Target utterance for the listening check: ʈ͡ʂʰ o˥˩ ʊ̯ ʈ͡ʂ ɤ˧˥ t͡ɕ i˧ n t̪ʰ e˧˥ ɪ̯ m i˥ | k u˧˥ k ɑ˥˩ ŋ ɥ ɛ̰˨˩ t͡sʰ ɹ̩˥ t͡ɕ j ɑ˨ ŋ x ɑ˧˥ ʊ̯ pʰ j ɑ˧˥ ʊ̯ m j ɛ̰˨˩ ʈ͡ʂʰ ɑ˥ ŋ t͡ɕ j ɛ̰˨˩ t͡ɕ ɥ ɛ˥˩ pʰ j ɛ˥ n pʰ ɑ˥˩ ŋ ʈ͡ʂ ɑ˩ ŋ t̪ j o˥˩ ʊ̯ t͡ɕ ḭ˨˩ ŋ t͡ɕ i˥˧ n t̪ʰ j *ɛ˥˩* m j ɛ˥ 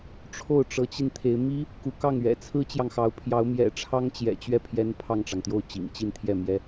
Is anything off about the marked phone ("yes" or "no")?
no